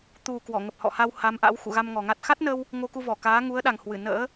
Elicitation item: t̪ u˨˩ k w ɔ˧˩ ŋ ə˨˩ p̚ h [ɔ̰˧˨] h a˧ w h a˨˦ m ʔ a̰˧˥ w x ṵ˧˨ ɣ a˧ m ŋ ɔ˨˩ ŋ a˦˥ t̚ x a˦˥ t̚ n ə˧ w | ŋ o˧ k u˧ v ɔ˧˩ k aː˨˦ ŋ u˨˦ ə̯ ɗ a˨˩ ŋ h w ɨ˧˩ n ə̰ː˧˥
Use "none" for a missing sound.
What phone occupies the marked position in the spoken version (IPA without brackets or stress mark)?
ɔ̰˧˨